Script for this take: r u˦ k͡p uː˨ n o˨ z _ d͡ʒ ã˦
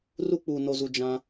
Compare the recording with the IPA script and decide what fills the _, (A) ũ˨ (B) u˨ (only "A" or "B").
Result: B